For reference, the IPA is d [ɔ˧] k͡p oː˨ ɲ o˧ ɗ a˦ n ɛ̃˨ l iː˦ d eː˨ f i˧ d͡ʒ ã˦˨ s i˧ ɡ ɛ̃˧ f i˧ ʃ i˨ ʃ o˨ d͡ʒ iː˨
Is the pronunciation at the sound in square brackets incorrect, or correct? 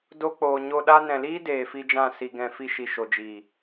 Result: incorrect